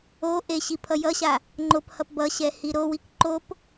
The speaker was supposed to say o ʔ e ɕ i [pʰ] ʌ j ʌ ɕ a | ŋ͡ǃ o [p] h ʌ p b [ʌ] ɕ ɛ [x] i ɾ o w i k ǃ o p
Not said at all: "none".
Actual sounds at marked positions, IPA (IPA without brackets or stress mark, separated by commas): pʰ, p, ʌ, h